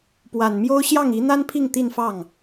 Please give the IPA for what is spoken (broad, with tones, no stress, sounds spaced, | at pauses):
p w a˨˩ n m j o˥ ʊ̯ ɕ j ɑ˥˩ ŋ i˧˥ n̪ a˥ n pʰ i˥˧ ŋ t̪ i˥˧ n f ɑ˥˩ ŋ